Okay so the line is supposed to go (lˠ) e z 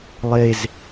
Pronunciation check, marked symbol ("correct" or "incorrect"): correct